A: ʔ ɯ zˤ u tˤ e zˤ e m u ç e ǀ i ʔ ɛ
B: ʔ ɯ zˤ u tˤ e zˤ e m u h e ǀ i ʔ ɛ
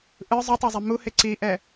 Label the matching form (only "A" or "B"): B